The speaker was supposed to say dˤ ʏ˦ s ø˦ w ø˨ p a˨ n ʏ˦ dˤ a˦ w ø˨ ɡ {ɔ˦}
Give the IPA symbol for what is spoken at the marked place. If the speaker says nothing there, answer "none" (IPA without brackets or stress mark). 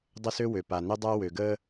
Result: ə˦